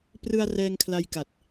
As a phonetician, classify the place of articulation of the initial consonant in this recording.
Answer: labial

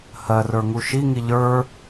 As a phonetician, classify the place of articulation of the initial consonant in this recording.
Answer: glottal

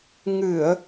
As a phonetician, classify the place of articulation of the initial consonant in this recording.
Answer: velar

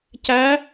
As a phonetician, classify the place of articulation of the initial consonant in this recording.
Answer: palatal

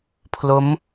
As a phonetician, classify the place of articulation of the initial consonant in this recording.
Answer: labial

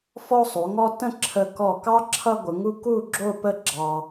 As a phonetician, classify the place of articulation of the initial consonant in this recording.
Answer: labial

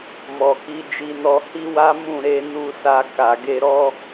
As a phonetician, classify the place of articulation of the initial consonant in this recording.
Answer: labial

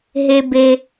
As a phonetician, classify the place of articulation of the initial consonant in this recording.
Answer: glottal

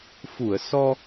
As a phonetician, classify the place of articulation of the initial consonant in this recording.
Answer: labial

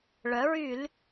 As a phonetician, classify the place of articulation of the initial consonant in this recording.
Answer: retroflex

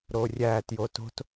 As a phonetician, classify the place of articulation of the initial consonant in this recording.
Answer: alveolar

